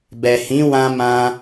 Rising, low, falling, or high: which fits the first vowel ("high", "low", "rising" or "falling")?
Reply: low